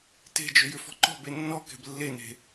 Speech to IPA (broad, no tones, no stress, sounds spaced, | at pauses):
t e̤ d͡ʒ ʏ j ʏ f ɔ̤ ǃ ɔ̤ b e nː ɔ k ɛ̤ b lː e n e̤